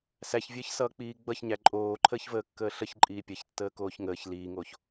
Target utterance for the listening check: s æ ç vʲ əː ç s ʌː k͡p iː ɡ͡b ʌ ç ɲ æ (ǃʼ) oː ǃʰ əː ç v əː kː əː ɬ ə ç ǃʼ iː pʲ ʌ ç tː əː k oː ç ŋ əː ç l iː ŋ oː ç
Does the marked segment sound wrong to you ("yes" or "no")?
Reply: no